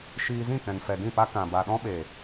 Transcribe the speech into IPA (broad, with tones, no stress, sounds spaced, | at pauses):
ʃ iː˧ z ĩ˦˨ k ɛ̃˨ n f ɛ˨ d ĩ˦˨ p a˧ k ã˨ b a˨ ɗ ɔ̃˦ ɓ e˨